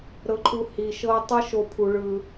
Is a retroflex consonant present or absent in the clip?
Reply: present